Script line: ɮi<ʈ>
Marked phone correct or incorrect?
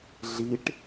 correct